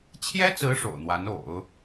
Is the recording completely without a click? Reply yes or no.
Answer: yes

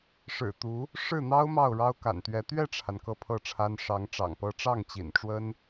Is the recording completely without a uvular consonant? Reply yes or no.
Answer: yes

